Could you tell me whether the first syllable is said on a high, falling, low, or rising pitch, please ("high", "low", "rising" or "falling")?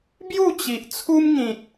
falling